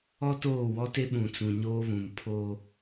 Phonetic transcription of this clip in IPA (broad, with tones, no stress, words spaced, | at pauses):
ɔ˦toː˦˨wɔ˦te˦ ɓũ˨t͡sũ˨ɲoː˦βũ˨m pʰo˦